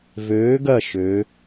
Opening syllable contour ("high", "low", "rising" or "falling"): rising